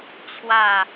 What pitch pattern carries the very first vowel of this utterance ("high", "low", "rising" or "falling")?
falling